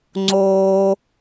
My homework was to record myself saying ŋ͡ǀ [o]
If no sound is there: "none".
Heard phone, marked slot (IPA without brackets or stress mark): oː